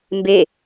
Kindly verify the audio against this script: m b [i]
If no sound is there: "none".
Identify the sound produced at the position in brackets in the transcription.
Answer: e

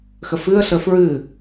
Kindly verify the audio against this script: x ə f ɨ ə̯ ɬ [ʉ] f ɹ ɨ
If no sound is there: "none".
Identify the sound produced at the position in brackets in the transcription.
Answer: ə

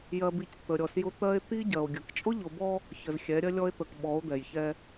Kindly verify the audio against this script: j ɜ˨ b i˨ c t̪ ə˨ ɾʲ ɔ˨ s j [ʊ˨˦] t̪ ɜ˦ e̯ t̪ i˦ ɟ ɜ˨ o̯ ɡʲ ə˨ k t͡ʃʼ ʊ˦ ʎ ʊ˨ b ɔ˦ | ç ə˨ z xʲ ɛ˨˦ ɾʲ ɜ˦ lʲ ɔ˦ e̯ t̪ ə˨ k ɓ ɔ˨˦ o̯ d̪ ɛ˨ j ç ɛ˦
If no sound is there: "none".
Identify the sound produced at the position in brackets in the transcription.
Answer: ʊ˦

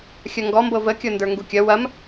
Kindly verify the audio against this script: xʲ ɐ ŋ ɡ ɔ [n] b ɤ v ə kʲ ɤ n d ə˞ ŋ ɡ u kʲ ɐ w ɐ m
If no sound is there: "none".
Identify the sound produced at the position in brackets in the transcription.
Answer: m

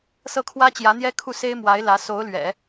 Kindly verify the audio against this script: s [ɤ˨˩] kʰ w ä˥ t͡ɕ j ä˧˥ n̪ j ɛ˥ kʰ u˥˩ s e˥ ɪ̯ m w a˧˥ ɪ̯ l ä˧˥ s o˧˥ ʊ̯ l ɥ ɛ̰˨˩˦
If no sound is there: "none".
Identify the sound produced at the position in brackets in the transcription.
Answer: ɤ˥˩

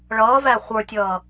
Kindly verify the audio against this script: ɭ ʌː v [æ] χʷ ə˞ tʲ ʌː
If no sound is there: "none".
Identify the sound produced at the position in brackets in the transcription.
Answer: æ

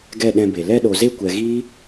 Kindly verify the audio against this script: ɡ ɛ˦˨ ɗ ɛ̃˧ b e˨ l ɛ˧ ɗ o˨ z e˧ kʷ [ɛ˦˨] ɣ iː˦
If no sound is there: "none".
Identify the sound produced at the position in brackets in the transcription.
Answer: ɛ˨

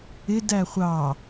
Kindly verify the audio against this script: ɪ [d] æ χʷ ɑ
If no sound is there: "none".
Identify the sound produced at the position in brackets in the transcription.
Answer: d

